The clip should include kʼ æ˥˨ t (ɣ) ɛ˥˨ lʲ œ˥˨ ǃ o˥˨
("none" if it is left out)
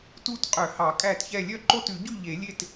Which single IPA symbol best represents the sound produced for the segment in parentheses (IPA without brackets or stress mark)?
ç